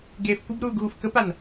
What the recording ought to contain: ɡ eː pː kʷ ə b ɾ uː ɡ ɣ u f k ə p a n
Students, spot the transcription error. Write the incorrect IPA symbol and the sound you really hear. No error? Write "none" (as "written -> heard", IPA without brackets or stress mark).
pː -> f